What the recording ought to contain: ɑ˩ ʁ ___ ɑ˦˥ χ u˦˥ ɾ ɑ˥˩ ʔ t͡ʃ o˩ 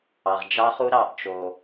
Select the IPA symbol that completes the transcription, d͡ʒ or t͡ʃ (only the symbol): d͡ʒ